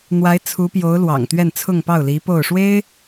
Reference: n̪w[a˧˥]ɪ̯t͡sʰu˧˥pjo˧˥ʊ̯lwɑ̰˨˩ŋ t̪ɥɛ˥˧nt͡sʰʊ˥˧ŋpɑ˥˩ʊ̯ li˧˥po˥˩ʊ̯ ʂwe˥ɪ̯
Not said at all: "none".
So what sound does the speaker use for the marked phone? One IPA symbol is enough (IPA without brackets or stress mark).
a˧˥